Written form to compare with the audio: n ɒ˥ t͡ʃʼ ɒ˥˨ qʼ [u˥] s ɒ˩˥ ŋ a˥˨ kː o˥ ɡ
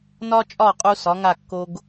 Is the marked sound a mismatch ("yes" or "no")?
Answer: no